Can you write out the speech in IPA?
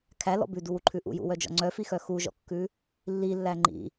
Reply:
kʰælɔ̰ bʉduwuǃʰʉ ʔṵjṵwœd͡ʒɔ̰ ŋ͡ǀœfixœ xuʒɔ̰kːʉ | lːilːæ ŋ͡ǃḭ

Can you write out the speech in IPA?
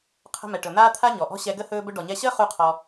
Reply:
qʰə̤˧ mɛ˨ʈɵ˨n̪aː˦ t̪ʰa˦ɲɔ˨ʔɔ̤˦ ɕɛ˧ɡə˦ hɵː˧bɵ˧ ɖɔ˨ɲɛ˧ɕəː˦ χu˦qʰɔ˧

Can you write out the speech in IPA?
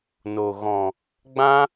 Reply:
no˨ ɣɔ̃˨ | ɡ͡bã˦

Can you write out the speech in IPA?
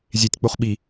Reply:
zʲetʲk͡poχ ɓi

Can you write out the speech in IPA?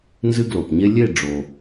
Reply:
nzɨ˦ɡlo˩pɲe˦ lʲe˦˨ɖ͡ʐo˩

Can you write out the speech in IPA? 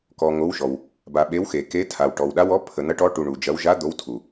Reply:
kɔ˨ ŋo˧˥wʃɔ˨w | ba˨ɓe˧˥wxe˨ke˧˥ tʰa˨w ʈɔ˨wɗa˧˥wɔ˧˥ pʰə˨ n̪ɐ˧˥ʈɔ˧˥ʈu˨ ɳu˨d͡ʒɐ˧˥w ʒa˧˥ d̪o˧˥w tʰu˨

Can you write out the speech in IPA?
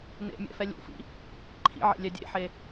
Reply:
nḛmʲɛ̰fɛ lʲṵfḭ | ǃʰḭʕḛlʲɛ dʲḛħe

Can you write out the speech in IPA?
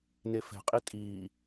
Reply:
nefɛ̤qʼi tʼiː

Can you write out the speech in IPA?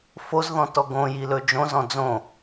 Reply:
fozðɔ̃tɔ ɡõjilɵ d͡ʒõzɔ̃ d͡zõ

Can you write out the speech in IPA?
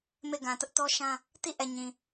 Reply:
me˦˨ɡã˨tʊ˦ʔ tɔ˦ʃã˦ | ti˦˨ʔɛ˨ ɲĩ˨

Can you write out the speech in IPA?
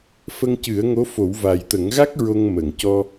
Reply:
fə˧ŋcɨ˨˩˦ə̯ ŋo˧˥fo˨˩˦w va˨˩jt̪ə˨˩˦ŋɣa˦˥k̚ ɹo˧ŋmə˨˩˨ŋcɔ˧

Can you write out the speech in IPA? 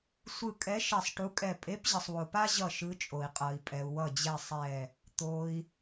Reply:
sʷɯ˦˨kʼɛ˧˥ ʃɛ˦˨sˤʈu˧˥kʼɛ˦˨ pʼe˧˥pʑʌ˨sˤwo˨ pa˥ʑʌ˦˨ ʃɯ˧˥ t͡ʃʼo˨i̯qʼʌ˨i̯pʼɛ˨u̯ wʌ˦˨d͡ʑɛ˦˨ sˤɛ˦˨ | t̪o˨i̯

